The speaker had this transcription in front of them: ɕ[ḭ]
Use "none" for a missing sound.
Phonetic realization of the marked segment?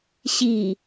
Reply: i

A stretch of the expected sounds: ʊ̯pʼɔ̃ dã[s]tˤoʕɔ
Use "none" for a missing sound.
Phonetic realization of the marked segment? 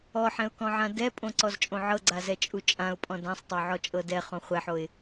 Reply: sˤ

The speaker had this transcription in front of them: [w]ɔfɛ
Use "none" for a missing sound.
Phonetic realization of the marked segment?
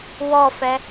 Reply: w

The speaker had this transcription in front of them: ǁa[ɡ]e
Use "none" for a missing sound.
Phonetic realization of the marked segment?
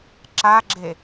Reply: ɡ͡ǁ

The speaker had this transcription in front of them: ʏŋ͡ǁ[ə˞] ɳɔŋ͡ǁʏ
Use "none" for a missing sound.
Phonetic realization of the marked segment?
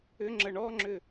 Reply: ə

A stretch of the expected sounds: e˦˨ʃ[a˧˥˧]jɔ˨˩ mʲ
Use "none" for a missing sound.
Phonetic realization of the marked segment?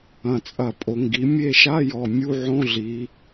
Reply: a˧˥˧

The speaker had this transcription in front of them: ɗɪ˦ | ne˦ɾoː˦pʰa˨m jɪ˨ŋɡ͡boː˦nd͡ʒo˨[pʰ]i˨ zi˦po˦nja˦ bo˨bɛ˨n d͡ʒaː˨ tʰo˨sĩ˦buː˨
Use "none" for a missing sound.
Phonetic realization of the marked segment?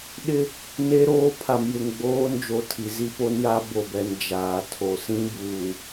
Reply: tʰ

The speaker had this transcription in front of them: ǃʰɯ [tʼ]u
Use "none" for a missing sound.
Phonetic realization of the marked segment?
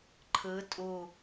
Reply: tʼ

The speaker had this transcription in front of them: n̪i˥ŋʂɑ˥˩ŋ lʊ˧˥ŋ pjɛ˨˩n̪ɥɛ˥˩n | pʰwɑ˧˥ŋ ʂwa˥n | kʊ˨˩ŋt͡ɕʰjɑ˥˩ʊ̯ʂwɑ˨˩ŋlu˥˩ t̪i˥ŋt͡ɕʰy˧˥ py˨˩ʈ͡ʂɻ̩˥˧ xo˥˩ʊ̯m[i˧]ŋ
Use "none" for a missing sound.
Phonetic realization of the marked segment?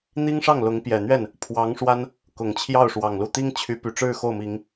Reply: i˨˩˦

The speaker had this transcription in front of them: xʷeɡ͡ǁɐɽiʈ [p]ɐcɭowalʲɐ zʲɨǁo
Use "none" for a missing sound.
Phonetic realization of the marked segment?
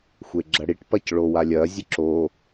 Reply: p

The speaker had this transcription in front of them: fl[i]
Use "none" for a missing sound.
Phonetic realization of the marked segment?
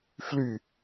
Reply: y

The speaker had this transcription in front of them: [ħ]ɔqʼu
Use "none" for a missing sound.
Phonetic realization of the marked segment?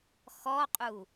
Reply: x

